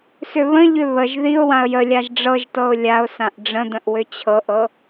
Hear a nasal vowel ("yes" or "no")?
yes